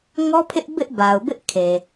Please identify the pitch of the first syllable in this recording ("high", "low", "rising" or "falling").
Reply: high